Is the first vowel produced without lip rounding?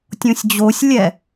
no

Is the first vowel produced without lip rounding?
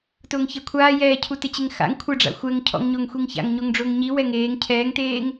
no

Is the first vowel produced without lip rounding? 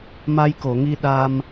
yes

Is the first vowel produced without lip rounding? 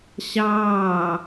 yes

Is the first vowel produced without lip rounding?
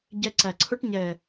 yes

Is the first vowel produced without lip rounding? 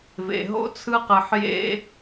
yes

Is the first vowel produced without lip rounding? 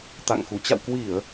yes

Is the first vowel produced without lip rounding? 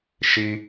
yes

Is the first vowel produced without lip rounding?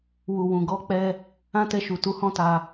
no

